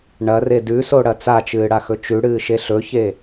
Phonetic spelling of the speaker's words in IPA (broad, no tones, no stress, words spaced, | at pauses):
ɳɐre dʉsoɽɐ t͡sat͡ʃɨːɽaxɵ t͡ʃʉɽɨːʃe ɬɵçe